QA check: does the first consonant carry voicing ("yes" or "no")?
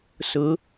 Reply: no